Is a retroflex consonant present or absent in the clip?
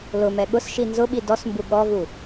absent